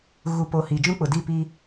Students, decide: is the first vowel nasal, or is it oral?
oral